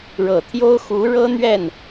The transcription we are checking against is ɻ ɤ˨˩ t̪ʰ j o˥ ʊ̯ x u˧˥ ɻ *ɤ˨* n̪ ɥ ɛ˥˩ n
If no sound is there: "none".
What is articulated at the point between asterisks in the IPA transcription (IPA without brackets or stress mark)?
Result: ɤ˥